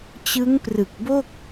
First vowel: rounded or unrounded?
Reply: unrounded